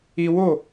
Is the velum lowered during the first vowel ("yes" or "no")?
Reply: no